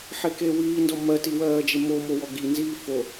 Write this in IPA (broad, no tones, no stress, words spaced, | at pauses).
ħekewiːndɔ mɜtiwɜːd͡ʒe momo wɔɡi nziːfo